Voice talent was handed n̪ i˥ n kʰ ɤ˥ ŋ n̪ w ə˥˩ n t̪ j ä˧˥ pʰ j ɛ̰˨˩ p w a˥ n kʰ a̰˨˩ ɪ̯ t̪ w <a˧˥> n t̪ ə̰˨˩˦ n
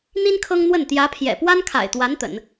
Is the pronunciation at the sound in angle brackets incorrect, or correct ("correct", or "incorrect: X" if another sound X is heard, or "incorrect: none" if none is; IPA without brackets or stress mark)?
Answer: correct